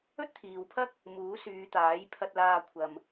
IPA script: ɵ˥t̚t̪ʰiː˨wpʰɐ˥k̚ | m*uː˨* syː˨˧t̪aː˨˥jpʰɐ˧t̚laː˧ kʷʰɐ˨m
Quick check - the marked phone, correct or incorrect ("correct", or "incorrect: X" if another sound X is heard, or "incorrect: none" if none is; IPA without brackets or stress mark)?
incorrect: uː˨˥